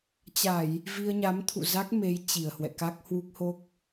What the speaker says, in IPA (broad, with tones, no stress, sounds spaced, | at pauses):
t͡ɕ a˧˩˨ j | v i˧ ə̯ ɲ a˨˦ m t̪ʰ ṵ˧˨ z a˦˥ k̚ m e˨˦ j t͡ɕ i˨˩ ə̯ h w ɛ̰˧˨ k a˦˥ k̚ h w u˦˥ k̚ h o˦˥ k̚